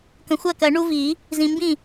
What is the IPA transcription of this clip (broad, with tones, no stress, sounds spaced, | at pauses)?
k ə̃˨ xʷ ɜ˥˩ k ɜ˨˩˦ ɳ u˦ v i˨˩˦ | z ĩ˨ m b ĩ˥˩